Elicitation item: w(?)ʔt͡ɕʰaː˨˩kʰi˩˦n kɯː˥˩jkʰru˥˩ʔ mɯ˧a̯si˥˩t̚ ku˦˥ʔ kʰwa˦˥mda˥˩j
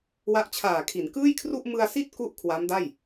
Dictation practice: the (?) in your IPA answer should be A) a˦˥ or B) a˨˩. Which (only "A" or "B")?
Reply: A